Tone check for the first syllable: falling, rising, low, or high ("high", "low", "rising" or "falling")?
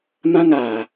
high